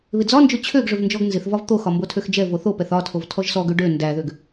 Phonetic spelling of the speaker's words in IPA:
βɪd͡zɒnd͡ʒo t͡ɕʰøɡʐøv nd͡ʒɔɡnzɪθvɒv t̪oxɒ mbotʰøxd͡ʒɛvo θopɛθ ɒtʰov tʰɔʒsɔɡø ɖø ndæðøɡ

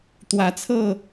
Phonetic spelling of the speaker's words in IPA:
t̪wä˨˦t͡sʰɤ˥˨

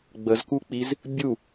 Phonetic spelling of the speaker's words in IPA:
ɡ͡bəzkuk͡piz | bʲu

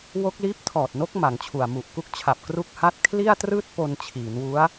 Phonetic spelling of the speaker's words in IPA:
wo˦˥k̚liː˦˥p̚ tʰɔː˨˩t̚no˦˥k̚ ma˩˦ŋt͡ɕʰu˨˩a̯ mu˨˩ʔ ku˦˥k̚t͡ɕʰa˨˩p̚ kru˦˥k̚ha˦˥t̚ kʰli˥˩a̯trɯː˥˩t̚ po˧nt͡ɕʰiː˩˦nwu˦˥a̯

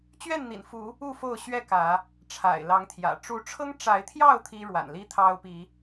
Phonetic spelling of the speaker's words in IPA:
t͡ɕɥɛ˥˨nn̪ḭ˨˩nfu˨˦ | u˥˨fo˥˨ʊ̯ ɕɥɛ˥˨kä˨˦ | ʈ͡ʂʰa̰˨˩ɪ̯lɑ˨˦ŋt̪ʰjä̰˨˩ ʈ͡ʂu˨˦ʈ͡ʂʰɤ˦ŋ ʈ͡ʂa˨˦ɪ̯t̪ʰjɑ˥˨ʊ̯ t̪ʰi˦ ɻwa̰˨˩nli˦t̪ʰɑ˦ʊ̯ pi˨˦

